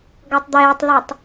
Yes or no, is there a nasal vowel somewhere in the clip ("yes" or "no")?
no